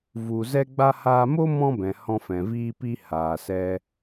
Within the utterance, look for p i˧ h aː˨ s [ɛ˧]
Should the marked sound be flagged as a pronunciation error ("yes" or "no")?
no